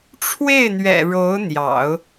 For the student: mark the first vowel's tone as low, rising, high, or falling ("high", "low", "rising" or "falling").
falling